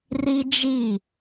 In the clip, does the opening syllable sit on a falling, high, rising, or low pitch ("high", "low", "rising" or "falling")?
high